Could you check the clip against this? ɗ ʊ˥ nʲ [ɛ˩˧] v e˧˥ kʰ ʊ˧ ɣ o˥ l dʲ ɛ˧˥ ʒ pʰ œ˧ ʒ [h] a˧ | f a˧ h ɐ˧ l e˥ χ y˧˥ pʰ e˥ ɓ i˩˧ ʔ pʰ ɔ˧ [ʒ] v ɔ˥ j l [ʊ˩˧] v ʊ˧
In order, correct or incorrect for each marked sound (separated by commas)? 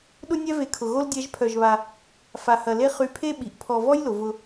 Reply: incorrect, incorrect, incorrect, correct